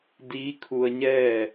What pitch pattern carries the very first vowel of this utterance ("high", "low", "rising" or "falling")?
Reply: rising